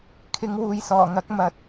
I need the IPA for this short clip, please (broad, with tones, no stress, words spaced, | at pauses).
kʰɪ˨˧ŋwuː˨jsɔː˨˩ŋɐ˨˥k̚ mɐ˧t̚